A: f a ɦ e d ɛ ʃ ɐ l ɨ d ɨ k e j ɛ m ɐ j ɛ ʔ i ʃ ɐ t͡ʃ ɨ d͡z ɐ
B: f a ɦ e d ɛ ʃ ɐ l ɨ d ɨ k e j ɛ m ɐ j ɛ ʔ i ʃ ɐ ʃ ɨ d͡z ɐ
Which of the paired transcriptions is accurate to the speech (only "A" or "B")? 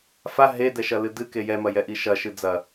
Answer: B